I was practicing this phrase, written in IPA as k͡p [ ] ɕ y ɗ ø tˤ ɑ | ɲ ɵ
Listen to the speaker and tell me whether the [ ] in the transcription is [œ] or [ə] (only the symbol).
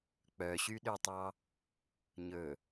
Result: œ